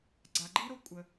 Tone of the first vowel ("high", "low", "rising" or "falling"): low